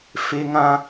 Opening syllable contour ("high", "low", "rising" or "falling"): high